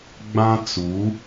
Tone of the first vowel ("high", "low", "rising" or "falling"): high